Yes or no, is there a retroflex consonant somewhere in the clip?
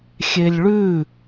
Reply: yes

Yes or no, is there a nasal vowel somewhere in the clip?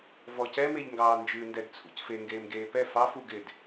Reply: no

